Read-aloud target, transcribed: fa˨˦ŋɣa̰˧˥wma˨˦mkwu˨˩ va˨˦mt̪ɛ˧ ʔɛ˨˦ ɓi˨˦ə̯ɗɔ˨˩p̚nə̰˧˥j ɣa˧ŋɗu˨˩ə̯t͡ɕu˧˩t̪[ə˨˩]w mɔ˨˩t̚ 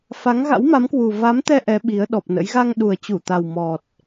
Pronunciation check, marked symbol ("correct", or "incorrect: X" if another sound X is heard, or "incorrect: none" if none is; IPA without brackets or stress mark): incorrect: a˨˩